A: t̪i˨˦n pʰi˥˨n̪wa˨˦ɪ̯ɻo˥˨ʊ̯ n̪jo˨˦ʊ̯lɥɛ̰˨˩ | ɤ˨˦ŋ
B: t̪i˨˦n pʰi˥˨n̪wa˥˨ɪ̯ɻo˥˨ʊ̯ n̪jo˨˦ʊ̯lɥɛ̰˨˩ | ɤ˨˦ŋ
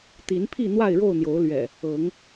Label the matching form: B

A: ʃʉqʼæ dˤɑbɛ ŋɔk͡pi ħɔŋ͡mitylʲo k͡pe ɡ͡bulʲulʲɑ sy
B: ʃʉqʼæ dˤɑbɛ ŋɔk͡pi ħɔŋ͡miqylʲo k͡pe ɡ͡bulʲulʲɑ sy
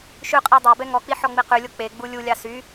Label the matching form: B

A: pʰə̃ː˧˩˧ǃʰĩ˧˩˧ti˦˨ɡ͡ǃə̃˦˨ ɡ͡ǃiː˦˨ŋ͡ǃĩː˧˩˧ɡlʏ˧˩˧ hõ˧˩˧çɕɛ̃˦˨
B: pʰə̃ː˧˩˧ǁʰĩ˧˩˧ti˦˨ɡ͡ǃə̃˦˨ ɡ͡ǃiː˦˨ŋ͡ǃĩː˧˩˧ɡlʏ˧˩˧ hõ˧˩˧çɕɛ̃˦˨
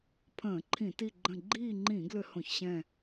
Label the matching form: A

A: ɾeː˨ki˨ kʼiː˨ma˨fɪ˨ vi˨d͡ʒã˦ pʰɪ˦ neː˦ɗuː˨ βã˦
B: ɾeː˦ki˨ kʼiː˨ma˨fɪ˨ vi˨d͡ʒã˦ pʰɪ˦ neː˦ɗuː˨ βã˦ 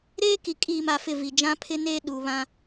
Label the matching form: B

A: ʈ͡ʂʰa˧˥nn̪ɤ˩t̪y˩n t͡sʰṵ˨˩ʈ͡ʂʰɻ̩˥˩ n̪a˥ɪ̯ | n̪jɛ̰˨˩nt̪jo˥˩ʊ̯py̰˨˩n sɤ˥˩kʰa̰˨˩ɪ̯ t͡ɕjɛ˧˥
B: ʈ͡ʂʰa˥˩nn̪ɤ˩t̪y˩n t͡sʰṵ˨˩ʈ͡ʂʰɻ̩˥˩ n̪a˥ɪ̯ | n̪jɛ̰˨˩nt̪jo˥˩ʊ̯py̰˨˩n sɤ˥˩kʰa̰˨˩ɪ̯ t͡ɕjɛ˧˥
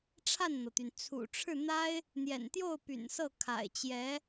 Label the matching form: B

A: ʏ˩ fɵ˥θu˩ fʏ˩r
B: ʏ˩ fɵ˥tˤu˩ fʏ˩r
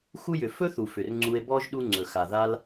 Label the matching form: A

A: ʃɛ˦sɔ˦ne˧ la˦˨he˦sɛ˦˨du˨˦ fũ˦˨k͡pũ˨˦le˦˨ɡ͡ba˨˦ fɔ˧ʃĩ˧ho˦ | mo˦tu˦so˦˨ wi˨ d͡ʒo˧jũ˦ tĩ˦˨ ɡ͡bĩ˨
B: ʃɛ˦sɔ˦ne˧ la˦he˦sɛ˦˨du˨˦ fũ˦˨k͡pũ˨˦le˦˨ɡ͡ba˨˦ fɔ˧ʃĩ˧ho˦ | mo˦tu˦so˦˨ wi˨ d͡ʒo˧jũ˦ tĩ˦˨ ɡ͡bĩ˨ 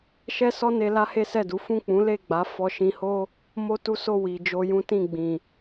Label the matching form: B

